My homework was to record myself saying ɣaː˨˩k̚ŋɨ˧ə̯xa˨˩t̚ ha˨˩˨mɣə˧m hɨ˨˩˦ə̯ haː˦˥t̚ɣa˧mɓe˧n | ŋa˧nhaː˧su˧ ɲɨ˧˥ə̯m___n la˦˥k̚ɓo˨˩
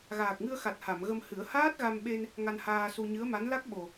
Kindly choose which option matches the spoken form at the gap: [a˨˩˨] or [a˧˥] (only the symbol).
a˧˥